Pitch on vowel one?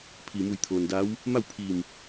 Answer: low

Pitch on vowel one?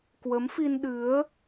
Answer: rising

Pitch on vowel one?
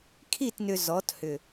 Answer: falling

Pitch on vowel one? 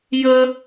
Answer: high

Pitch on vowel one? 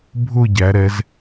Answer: falling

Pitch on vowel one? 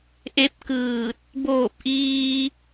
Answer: rising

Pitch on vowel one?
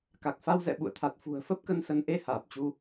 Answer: low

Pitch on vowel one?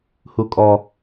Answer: high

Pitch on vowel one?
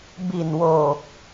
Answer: low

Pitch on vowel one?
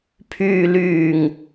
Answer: low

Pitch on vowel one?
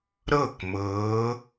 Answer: falling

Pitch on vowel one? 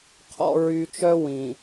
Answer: low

